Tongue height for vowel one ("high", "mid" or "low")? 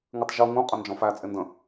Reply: high